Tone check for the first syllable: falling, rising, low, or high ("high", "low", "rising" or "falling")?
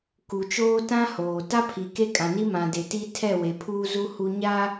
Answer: low